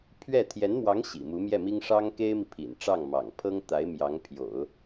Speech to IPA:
pʰɥɛ˥˩ t̪ʰjɛ˧˥nmwɑ˧˥ŋ ɕḭ˨˩mu˧˥mjɛ˥˩mi˥ŋ ʂɑ˥ŋke˥ɪ̯mi˨ pʰḭ˨˩nʈ͡ʂɑ˥˩ŋ mɑ̰˨˩ŋpʰɤ˥ŋt̪a˧˥ɪ̯ mjɑ˧˥ŋ pʰjo̰˨˩˦ʊ̯

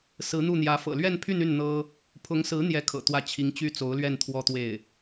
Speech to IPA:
sɹ̩˧˥n̪u˥˩n̪jä˧˥ fɤ̰˨˩lɥɛ˥˧npʰy˥˧ny˥˩n n̪ɤ˥ | pʰʊ˧˥ŋsɹ̩˧˥ n̪jɛ˥˩kʰɤ̰˨˩t̪wä˥˩ t͡ɕʰi˧˥ŋt͡ɕy˥t͡so˧˥ʊ̯lɥɛ˥˧n t̪ʰwɔ˥˧t̪we˥˩ɪ̯

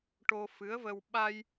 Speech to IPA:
ʈo˧fɨ˧˥ə̯və˧w ɓa˧j

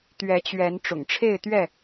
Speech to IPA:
t̪ɥɛ˨˦t͡ɕɥɛ˨˦n ʈ͡ʂʊ̰˨˩ŋʈ͡ʂʰe˥˨ɪ̯t̪ɥɛ˥˨

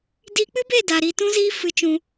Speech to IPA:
di˧k͡pɨ˦be˦˨ da˨ ɾi˧tũ˦ziː˦ fɨ˧t͡ʃũ˧

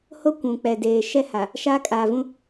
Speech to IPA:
ho˦ kʷũ˨k͡pɛ˨deː˨ ʃɛ˦ha˨ | ʃaː˦kʼaː˨vũ˦

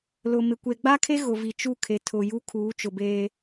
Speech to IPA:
lʊ˨mɪ˨ kʷe˨ɡ͡ba˦kʰe˦ ɣʊ˨vi˨t͡ʃu˦˨ kʰe˨tʰʊ˨ju˦ kʰuː˨˦t͡ʃʊ˨beː˦

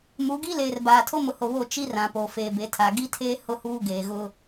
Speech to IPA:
mu˨˦ɡi˦leː˨r baː˨tʰo˦mʊ˨ho˨ βo˦˨ t͡ʃi˦rã˨ po˨ feː˨be˨tʰa˨ ɡi˦tʰeː˦ hʊ˦huː˦ ɡeː˨ɣʊ˦

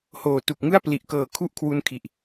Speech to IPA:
hoː˨˩tu˨˩k̚ŋɯ˥˩a̯ pli˨˩ʔkɤː˨˩ kʰu˥˩ʔkʰwu˦˥nkʰi˨˩ʔ

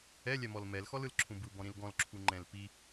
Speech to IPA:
ɛlʲɛmɔl mɛlxɔlɯlǁʰũ bɯbɔ̃ɾĩl ɡɔ̃lǁʰuŋ͡ǃɛ̃l pi

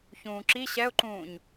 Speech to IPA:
çũːǁi ɕɛʊ̯ǃũːɲ

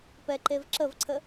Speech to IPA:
pɛǃevǁəvǀʰə

